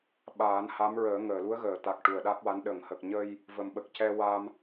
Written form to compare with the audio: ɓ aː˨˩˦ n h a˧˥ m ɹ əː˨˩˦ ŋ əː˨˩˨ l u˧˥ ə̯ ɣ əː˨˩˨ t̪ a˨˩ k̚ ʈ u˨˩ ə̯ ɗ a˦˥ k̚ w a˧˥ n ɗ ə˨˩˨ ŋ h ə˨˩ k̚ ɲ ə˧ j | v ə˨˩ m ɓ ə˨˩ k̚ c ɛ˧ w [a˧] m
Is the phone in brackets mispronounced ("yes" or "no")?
no